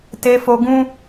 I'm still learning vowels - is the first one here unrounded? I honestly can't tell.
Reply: yes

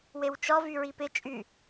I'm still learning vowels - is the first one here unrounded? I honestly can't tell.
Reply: yes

